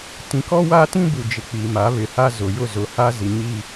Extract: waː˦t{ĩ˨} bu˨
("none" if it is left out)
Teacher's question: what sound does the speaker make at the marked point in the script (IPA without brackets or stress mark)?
ĩ˦